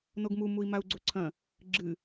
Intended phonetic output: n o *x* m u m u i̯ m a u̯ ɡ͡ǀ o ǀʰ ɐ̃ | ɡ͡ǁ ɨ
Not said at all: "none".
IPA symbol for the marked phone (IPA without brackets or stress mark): ɡ